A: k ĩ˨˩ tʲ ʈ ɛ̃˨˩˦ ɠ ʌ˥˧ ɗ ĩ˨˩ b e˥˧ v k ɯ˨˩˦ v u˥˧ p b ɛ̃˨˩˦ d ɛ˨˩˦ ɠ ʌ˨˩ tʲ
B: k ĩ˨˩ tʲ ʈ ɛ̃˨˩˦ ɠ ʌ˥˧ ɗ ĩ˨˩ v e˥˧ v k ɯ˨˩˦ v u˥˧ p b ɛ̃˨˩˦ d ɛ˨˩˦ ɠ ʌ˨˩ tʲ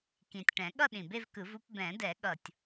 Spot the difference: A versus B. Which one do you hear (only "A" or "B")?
A